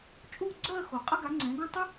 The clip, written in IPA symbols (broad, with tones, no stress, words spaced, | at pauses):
t͡ʃʼu˥˧ɡ͡ǀɜ˥˧xo˨˩ qʼə˥ɡa˨˥ŋ͡ǀɛ̃˨˥ɡõ˥ tˤə˥